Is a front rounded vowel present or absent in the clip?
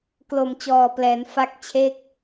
absent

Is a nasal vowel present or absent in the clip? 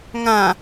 present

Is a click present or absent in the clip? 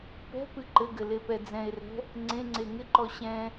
present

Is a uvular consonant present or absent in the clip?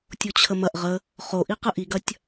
present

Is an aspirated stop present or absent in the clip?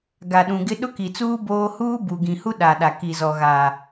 absent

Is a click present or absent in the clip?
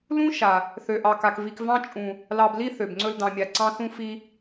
present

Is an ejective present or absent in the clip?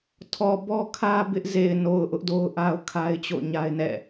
absent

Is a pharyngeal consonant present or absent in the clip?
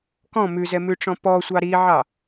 present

